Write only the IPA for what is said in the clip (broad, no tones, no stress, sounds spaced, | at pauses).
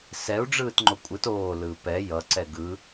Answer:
s ɛ u̯ ɖ͡ʐ ɯː t ŋ͡ǃ o kʷʼ ɯ t oː l ɯː p ɛ j ʌ ǀ ɛ ɡ ɯ